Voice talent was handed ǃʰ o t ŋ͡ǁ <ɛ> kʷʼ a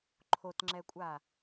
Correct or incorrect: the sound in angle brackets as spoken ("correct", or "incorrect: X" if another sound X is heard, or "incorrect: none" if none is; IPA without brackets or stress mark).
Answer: correct